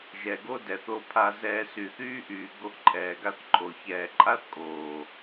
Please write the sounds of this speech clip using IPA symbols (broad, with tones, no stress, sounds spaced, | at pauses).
ʒ ɛ˨ ɡ o˦ d ɛ˨ θ o˧ pʰ a˧ z ɛː˧ s y˨ θ yː˦ ʔ yː˨ ɡ o˧ ʔ ǃʼ ɛː˨ ɡ a˧ θ ǃʼ o˨ ç ɛː˨ ǃʼ a˦ θ kʼ oː˨